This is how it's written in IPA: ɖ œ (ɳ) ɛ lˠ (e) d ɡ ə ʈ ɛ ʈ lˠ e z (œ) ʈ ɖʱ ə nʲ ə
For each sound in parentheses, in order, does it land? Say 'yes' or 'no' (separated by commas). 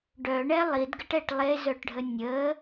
yes, no, yes